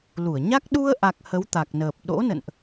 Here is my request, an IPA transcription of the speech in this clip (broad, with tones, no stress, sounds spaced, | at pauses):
l u˧˩ ə̯ ɲ a˦˥ k̚ ɗ u˧ ə̯ ʔ a˨˩ k̚ h ə˨˦ w t̪ a˨˩ k̚ n əː˨˩ p̚ ɗ o̰˧˥ n ə̰˧˨ n ʔ